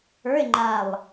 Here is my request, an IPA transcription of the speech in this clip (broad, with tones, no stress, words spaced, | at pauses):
ə˞˧˥˧e̯ŋ͡ǃa˧˩lˠ